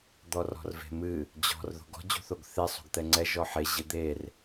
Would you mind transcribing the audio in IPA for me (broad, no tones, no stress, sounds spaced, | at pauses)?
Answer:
d̪ ɔ r ɔ̤ r v e̤ m ɨ | d͡ʑ ɔ̤ r ð o̤ ɡ ɔ̤ d͡ʑ ṳ θ o ɡ θ e sˤ ṳ ɡ t̪ ɛ ŋ͡ǀ ɛ ʒ ɔ ħ e ʑ ɨ d̪ e r